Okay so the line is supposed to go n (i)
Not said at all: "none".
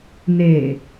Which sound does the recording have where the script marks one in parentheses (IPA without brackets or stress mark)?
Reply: e